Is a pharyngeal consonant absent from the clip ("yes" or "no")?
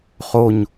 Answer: yes